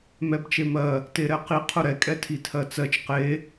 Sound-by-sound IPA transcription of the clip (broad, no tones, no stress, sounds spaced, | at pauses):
m ɛ b t͡ʃ e m ɜ | t e ɾ ɛ q i qʰ ʊ ɾ ɛ kʼ ɛ tʰ i tʰ ɜ t͡s ɜ t͡ʃ q e